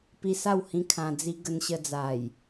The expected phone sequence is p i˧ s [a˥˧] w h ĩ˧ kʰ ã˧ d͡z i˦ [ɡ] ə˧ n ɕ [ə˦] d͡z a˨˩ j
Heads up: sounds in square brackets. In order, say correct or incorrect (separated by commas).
correct, correct, incorrect